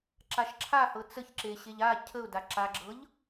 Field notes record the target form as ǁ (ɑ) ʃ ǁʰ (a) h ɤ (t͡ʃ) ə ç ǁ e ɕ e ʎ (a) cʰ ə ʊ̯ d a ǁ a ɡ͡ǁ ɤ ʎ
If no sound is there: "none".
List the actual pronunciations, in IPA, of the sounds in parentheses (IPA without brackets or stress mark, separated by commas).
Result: a, a, t͡s, a